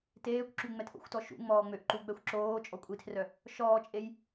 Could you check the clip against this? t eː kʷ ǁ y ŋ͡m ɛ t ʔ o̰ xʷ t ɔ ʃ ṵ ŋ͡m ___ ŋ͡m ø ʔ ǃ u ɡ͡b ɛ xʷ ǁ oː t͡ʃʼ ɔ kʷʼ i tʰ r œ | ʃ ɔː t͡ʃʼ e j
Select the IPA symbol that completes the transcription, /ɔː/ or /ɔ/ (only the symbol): ɔː